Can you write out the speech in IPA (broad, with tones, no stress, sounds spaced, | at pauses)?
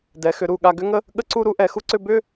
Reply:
d ɛ˩˧ x ʏ˩˧ ɾ u˧˩ ɠ a˧ ɡ ʏ˥ ŋ ə˥ | ɠ ə˥ ǀ u˥˧ ɾ u˥ ʔ ɛ˩˧ x u˥ ǀ ʏ˥˧ b ʏ˥˧